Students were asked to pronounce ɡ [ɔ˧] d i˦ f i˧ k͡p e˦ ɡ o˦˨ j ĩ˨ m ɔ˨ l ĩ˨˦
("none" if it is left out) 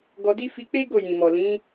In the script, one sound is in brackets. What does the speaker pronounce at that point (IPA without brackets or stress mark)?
ɔ˧